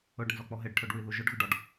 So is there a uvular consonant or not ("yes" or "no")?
no